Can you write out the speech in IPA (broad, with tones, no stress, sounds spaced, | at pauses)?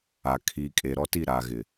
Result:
a˨ kʰ iː˨ kʼ e˨ ɾ ɔ˦ t i˦˨ ɾ aː˨ ɣ ɪ˨